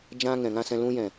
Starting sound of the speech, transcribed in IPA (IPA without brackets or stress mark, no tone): d͡ʒ